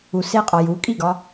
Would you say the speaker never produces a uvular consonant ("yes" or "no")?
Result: no